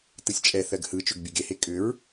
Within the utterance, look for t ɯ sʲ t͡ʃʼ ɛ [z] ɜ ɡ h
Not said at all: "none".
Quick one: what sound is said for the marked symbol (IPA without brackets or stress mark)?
θ